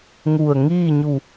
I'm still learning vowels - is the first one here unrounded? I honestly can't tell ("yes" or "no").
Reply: no